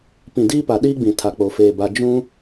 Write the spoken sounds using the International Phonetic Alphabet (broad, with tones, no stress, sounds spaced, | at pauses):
p ĩ˨ d iː˦ p a˨ ɗ iː˦ ɡ͡b ĩ˨ tʰ a˨ k͡p o˨ f eː˨ b a˨ d͡ʒ ũ˦